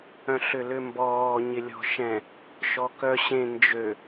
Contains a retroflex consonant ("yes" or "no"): no